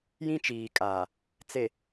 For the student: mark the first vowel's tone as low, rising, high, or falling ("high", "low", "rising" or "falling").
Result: high